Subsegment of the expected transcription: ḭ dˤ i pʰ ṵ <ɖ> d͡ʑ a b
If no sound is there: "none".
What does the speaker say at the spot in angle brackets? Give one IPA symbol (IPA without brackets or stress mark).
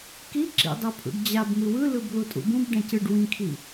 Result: ɖ